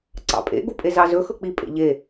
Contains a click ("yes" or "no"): yes